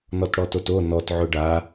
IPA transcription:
n ɔ t ɽ ɔ t o t o n ɔ t ʕ ʊ ɖ a

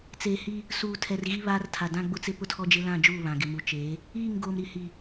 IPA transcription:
t͡s eː˨ h i˦ | s uː˨ tʰ ɛ˨ r ɣ i˦ β aː˦ r tʰ a˨ d ã˦ ɡ͡b ʊ˦ t͡s ɪ˦ p ʊ˦ tʰ ɔ˦ d͡ʒ ɪ˦ l ã˦˨ d͡ʒ uː˦˨ β ã˨ ɡ ɪ˨ m u˨ t͡ʃ eː˨˦ | iː˦˨ ŋ ɡ oː˨ m ɾ i˨ h i˨

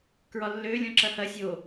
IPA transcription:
k ɹ ɒ lː ø lʲ ɔ̃ ǁ ɐ h ɐ sʲ o

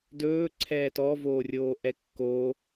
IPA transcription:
d ɵː ǀʰ ɛː t ɔ v oː rʲ oː ʔ ɛ kː o

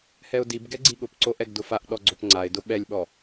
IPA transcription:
h ɛ ʊ̯ d i b ɡ ɛ ɡ͡ǀ i ɠ ʊ p ǀ o ʔ ɛ ɡ d ʊ f a ʔ ɗ ɔ ɡ͡ǀ o p ŋ͡ǀ a ɪ̯ d ʊ ɓ ɛ lʲ ɓ ɔ

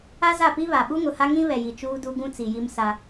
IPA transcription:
a˦ z a˦˨ p i˦ β a˨ ɓ u˦ ŋ ʊ˨ h a˦ ŋ ĩ˦ β ɛ˨ j i˨ t͡ʃ uː˦ d u˦ ɡ ũ˦ t͡s i˨ j i˦ m s a˦

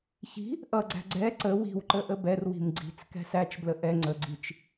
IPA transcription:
ç i̤ | ʔ ʌ ɡ͡ǀ æ̤ ɡ͡ǀ ɛ ǀ ə w i̤ w ǃ ə ʔ ə b ɛ r w i̤ m ɡ͡ǀ i̤ t͡s k ɛ̤ s æ t͡ʃ b l ə ʔ ɛ ŋ͡ǀ ə ɡ͡ǀ i t͡ʃ

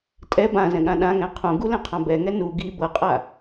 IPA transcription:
tʼ ɛ b ã z ɛ̃ ɠ ã ɗ ã ŋ ɛ̃ qʰ ũ ɡ u l ɛ̃ qʰ ã b ɛ ŋ ɛ n u ɡ i b ɤ qʼ a

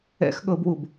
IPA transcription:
ɛ̰ x ɠ ɤ b w u b

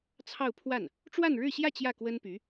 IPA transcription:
t͡sʰ ɑ˥˧ ʊ̯ pʰ w a˥˩ n | ʈ͡ʂ w a˥˧ n ɻ ɻ̩˥˧ ɕ j ä˥˧ t͡ɕ j ä˥˩ k w ə˥ n p y˧˥

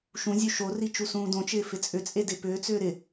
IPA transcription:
ʃ ũ zʲ u ʃ o r i t͡ʃ u s ũː d õ t͡ʃ ɪː f ɪ t͡sʼ ʏ t͡sʼ e d ɪ p ʏː t͡s ʏː ɾ ɪ

